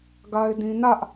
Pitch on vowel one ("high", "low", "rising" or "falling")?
high